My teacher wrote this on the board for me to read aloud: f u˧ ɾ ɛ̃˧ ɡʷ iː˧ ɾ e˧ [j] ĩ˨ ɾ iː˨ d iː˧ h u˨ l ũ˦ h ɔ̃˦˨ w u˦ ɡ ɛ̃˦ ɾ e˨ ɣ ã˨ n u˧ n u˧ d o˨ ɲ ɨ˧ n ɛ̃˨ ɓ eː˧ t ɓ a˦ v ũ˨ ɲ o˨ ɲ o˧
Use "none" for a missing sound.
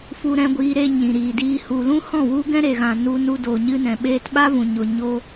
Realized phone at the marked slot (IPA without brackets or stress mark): ɲ